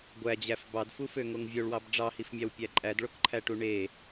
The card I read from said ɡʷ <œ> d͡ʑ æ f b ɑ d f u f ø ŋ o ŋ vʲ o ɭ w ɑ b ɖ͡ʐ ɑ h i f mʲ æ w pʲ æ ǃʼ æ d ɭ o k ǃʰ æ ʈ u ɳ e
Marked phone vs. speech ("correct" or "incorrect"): incorrect